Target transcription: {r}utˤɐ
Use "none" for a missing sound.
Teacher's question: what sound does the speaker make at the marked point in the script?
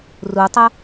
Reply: r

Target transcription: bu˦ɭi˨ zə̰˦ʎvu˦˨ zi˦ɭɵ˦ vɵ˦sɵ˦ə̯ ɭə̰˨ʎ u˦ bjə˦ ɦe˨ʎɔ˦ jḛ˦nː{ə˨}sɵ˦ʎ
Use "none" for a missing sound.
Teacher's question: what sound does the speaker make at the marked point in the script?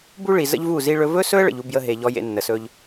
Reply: ə˨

